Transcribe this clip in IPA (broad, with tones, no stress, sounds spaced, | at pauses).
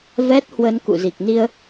v ɛ˦˥ t̚ h w ə˧ n k ṵ˧˨ z i˨˩ k̚ n i˧ ə̯